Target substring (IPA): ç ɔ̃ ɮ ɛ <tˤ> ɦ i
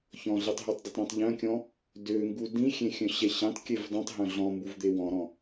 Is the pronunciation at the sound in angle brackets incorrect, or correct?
correct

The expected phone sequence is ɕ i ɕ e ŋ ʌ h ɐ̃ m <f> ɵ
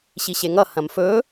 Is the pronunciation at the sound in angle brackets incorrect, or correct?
correct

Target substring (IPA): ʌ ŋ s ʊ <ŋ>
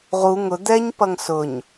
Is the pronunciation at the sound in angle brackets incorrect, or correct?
incorrect: ɲ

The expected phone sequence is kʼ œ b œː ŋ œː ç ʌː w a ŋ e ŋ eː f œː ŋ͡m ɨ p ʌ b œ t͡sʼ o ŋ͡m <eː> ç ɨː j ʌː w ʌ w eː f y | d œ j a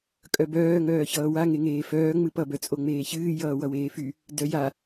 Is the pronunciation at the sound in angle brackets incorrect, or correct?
correct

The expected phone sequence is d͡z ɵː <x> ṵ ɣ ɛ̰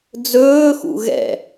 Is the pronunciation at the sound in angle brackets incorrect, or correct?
correct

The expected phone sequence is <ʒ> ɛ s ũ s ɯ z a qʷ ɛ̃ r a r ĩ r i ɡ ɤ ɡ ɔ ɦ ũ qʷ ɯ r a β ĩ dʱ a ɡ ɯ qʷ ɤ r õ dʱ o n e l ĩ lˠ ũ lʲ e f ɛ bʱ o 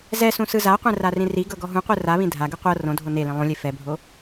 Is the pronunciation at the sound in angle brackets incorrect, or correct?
incorrect: z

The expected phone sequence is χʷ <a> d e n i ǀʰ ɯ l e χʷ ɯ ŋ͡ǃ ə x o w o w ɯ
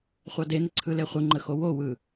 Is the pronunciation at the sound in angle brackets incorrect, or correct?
incorrect: ɑ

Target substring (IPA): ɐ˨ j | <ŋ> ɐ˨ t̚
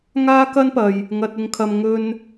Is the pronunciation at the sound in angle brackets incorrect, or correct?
correct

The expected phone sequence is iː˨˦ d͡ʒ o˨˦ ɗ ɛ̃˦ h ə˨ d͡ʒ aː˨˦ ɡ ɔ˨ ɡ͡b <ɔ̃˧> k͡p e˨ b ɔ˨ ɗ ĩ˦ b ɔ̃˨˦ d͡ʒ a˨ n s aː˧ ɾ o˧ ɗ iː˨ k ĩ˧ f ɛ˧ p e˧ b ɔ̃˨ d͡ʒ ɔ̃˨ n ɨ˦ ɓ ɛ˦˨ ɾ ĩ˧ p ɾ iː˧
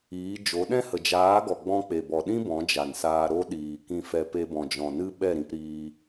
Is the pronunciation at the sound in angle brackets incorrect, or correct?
correct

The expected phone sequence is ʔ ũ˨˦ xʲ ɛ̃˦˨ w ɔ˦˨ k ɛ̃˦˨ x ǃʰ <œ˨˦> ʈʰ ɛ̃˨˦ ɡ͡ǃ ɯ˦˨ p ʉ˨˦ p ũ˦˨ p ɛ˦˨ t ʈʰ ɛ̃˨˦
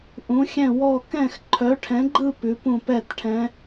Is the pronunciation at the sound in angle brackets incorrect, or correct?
correct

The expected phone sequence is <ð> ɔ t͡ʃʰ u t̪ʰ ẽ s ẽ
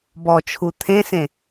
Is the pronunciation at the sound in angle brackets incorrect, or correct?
incorrect: b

